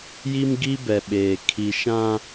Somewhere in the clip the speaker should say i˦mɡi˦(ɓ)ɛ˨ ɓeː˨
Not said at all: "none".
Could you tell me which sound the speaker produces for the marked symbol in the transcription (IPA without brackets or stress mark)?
b